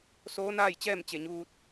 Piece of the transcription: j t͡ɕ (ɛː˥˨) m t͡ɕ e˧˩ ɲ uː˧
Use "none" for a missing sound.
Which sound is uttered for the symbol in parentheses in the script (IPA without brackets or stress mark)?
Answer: ɛː˥˨